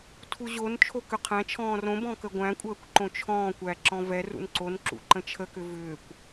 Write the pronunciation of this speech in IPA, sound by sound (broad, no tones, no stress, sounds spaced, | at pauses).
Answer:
tʰ u ʑ o n t͡ʃʰ o k ʏ qʰ æ̃ t͡ʃʰ ɔ̃ː r õ b ɔ̃ k ə ɡʷ æ̃ kʷʼ əː kʷ ǃ õ t͡ʃʰ ɔ̃ː kʷ æ ǁ ɔ̃ v ɛ r ṵ n ǀ o n ǁ ṵ ǃ ə̃ t͡ʃʰ ə k ʏ v ʏː kʷ